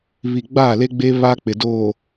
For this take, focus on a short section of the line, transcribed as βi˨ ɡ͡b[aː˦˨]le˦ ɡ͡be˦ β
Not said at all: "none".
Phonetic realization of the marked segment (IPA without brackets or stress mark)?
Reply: aː˦˨